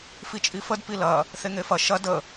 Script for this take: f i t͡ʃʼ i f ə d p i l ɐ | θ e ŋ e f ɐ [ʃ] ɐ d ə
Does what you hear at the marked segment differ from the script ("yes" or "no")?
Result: no